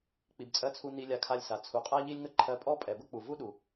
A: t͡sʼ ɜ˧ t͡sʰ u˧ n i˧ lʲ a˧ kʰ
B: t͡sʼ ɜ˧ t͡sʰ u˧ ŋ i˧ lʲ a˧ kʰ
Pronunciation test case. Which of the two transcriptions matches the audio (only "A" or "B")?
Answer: A